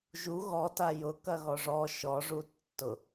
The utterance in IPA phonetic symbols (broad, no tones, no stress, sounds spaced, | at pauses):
ʒ u ɣ ɔ t a j ʊ k ɐ ɣ ɔ ʐ ɔ ʃ ɔ ʐ u tː ʊ